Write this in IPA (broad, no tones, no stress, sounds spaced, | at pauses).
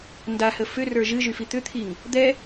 n d a h ə f ʏ r ə˞ ʒ ɨ ʒ y f i t̪ ʏ t̪ʰ i ŋ | d̪ ɛ